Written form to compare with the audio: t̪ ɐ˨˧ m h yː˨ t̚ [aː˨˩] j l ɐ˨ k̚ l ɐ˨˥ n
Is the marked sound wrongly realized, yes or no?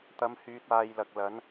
yes